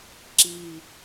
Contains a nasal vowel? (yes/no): no